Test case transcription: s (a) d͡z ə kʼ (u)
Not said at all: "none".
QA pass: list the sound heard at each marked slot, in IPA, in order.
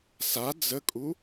a, u

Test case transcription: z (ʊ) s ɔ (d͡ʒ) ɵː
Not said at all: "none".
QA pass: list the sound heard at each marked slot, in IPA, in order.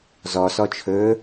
ɔ, t͡ʃʰ

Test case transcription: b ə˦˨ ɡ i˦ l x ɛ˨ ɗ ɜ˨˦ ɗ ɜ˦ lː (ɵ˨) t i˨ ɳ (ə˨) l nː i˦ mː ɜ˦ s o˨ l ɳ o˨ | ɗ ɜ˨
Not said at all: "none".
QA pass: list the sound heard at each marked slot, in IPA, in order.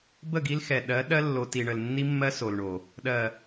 o˨, ə˨

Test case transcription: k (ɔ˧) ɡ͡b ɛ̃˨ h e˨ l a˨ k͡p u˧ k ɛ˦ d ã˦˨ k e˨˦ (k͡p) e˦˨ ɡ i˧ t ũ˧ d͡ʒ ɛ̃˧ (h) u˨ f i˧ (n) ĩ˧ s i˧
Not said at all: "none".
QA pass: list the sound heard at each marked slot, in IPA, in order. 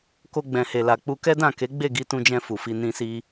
o˧, ɡ͡b, f, n

